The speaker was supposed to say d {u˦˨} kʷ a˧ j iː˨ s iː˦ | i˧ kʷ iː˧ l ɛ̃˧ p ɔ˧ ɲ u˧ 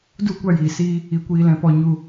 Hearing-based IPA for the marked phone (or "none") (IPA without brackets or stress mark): u˦˨